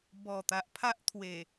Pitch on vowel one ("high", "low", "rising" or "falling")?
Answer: low